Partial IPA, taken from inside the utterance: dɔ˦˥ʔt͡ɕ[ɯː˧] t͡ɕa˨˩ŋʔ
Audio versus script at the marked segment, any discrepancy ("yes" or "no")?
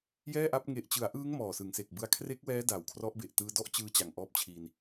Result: no